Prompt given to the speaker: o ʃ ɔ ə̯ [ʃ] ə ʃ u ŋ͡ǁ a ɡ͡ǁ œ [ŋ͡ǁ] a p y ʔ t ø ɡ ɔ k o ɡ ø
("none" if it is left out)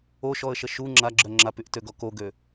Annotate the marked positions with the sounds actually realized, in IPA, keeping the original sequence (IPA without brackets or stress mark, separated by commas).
ʃ, ŋ͡ǁ